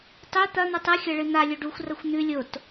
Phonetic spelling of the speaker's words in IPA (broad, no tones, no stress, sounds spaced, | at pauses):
tˤ ʉ t̪ ɐ n̪ ɵ tˤ ɨ xʲ ɐ ɭ ɨ n̪ a lʲ ɵ ɖ u xʷ r ɐ xʷ n̪ ʉ lʲ o t